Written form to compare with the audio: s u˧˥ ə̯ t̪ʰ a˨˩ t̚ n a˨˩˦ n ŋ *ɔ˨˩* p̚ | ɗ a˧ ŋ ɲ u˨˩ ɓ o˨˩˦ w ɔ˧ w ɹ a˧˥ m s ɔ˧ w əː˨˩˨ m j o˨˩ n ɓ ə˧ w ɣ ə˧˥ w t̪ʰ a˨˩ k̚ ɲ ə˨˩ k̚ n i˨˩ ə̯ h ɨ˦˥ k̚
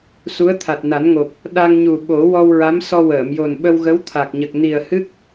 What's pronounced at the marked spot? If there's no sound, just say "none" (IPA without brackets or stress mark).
o˨˩